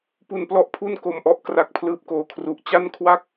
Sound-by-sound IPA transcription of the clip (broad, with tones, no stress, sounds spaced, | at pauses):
p u˧ n p l ɔ˦˥ ʔ pʰ u˥˩ n k o˨˩ m ʔ ɔ˨˩ ʔ k r a˨˩ k̚ pʰ l ɯː˨˩ p̚ k oː˨˩ kʰ r u˨˩ ʔ t͡ɕ a˥˩ n kʰ w a˥˩ k̚